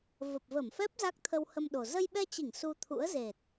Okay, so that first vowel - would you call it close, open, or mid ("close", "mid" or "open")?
mid